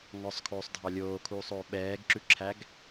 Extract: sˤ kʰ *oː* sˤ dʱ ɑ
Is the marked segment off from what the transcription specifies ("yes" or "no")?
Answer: no